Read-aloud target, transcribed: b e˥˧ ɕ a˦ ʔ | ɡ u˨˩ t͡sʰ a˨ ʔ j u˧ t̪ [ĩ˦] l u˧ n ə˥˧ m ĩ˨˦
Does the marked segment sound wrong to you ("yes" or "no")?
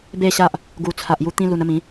no